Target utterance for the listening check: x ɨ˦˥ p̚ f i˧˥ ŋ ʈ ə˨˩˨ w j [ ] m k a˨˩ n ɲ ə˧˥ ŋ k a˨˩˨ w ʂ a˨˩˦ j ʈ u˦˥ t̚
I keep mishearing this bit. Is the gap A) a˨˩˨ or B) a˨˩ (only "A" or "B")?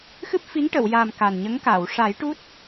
B